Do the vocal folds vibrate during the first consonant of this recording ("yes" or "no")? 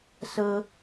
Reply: no